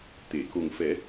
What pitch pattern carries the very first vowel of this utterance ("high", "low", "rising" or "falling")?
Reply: low